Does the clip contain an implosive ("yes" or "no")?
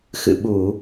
yes